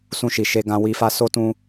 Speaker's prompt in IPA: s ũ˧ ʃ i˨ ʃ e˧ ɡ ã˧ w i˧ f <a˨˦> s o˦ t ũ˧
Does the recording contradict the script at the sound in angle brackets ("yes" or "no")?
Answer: yes